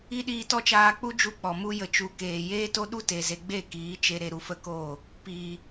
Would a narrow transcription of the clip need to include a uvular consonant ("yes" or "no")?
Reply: no